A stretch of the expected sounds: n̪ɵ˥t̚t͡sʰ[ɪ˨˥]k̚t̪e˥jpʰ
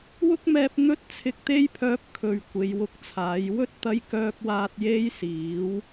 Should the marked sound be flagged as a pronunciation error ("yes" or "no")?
yes